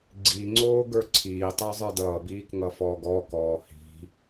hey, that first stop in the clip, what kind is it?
click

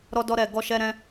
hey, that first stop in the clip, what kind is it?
plain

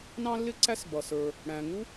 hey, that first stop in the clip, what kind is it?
click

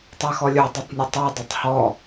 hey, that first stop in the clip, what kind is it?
plain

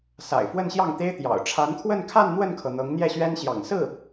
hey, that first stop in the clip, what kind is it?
plain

